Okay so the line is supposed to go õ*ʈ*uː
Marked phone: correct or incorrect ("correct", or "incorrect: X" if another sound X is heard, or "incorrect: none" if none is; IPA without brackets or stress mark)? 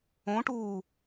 correct